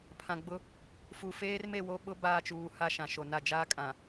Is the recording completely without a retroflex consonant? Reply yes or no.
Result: yes